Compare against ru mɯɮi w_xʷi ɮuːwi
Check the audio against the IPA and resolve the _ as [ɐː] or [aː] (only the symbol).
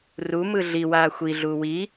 aː